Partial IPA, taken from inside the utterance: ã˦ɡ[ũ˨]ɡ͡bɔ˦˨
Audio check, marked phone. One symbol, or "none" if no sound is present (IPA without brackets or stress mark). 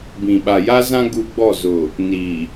u˨